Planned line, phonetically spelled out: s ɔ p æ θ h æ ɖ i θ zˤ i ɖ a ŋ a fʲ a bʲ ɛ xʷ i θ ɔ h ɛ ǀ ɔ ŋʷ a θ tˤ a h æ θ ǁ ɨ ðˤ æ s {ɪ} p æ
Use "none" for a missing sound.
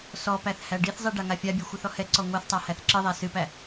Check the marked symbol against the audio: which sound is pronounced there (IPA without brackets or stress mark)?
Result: ɨ